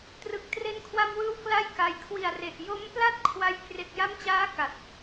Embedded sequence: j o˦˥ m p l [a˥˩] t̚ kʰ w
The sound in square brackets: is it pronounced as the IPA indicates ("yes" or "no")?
yes